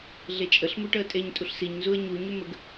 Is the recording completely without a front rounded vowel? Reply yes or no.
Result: no